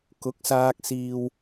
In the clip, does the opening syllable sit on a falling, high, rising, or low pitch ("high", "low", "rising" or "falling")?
rising